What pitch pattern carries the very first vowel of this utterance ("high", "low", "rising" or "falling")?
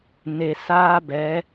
low